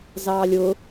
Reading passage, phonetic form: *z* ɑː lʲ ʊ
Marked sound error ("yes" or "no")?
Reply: no